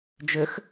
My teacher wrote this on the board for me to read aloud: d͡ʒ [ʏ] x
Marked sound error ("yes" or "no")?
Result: no